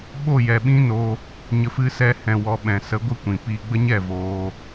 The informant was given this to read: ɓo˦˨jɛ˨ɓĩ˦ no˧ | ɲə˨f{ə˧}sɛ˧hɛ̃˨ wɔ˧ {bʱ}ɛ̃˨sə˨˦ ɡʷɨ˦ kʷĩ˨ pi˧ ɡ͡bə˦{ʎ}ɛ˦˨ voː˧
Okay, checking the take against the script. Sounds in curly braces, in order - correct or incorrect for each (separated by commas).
incorrect, incorrect, incorrect